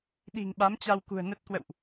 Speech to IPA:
ɗi̤˨˩ŋɓa˨˦mt͡ɕa˧wkṳ˨˩ə̯ nə˦˥t̚ kwə̰˧˨wʔ

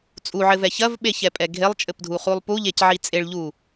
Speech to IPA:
t͡sʼuʕɘvɛ çɐvɓeçɛpʼɛ ɡʱelˠt͡ʃʼɘpdʱuχulˠ puʎecʕi t͡sʼeɭʎu

